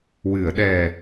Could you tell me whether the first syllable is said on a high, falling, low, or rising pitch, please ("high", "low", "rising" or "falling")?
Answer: low